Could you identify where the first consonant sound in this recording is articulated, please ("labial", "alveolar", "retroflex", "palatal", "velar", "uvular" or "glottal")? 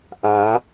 glottal